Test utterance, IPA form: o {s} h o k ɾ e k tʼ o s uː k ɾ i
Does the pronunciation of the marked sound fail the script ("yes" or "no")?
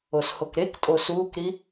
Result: no